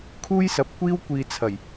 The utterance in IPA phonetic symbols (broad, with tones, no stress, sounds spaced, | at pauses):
kʰ uː˥ j s ɐ˨˥ p̚ kʷ iː˥ w kʷ iː˨ t͡sʰ ɐ˨˩ j